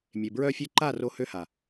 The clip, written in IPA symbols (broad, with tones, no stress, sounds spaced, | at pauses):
mʲ e˨ b ɹ œ˧ fʲ ø˧ ǃ a˦˨ r o˧ h ø˧ h a˨